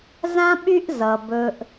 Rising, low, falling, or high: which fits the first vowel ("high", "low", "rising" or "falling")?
high